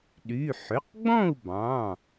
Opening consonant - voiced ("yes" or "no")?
yes